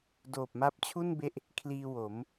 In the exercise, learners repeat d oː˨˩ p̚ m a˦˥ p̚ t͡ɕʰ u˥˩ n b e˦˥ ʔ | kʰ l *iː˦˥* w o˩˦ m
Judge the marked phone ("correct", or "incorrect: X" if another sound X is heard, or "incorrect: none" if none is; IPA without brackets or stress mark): incorrect: iː˧